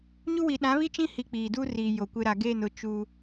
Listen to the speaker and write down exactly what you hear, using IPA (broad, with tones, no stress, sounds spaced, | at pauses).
ɲ u˦ w i˨ ɗ ã˨˦ β i˦ t͡ʃ ĩ˦ h i˦ k͡p iː˨ d uː˦ r iː˨ j o˨ kʷ ɪ˦ ɾ a˨ ɡ eː˦˨ n ʊ˨˦ t͡ʃ uː˦